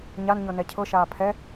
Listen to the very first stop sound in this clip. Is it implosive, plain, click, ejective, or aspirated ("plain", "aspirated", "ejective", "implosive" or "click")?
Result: aspirated